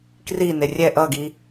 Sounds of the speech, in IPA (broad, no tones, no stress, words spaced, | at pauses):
krine rʲɛ ʔʌɡi